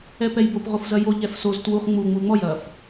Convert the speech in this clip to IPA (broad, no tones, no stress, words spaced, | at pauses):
ɛpɛjbop ʁofzɐjo ʎɛfsoz twuχ ŋ͡mu ŋ͡muŋ͡mɔj ɐf